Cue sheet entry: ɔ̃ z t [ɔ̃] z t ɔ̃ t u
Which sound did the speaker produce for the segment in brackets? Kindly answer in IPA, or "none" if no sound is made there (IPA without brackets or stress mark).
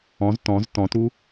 ɔ̃